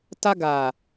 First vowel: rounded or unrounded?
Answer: unrounded